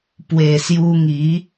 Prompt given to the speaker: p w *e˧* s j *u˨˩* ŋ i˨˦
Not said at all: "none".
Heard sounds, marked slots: e˨˩, u˧

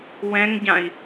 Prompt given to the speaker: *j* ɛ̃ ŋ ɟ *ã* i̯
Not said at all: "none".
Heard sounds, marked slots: w, ã

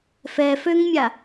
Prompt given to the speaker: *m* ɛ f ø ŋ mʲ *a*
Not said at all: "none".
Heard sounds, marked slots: f, a

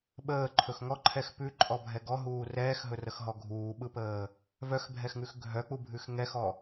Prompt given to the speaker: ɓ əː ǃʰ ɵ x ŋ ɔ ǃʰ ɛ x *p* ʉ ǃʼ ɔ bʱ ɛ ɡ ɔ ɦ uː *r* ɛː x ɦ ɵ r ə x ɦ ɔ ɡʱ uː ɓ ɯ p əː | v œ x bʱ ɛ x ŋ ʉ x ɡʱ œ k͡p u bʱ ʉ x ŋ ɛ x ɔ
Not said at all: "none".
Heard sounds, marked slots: p, r

